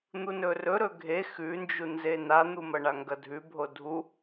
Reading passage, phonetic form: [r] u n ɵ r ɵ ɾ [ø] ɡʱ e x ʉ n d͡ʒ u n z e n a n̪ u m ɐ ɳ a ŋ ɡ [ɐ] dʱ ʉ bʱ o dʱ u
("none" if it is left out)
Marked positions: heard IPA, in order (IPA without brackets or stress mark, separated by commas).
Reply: n̪, ɵ, ɐ